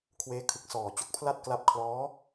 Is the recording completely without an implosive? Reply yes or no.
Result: yes